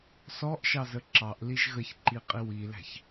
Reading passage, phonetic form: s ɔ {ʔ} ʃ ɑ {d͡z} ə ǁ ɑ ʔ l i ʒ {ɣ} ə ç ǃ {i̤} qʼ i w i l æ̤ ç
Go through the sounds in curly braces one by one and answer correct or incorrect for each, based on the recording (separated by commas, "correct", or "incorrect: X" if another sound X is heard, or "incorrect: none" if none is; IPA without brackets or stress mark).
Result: correct, incorrect: z, correct, incorrect: i